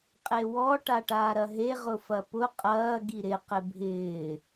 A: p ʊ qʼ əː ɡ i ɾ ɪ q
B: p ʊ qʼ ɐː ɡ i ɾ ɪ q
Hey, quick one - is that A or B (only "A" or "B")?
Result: B